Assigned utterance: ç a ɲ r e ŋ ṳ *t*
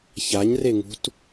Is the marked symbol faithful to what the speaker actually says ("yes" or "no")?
yes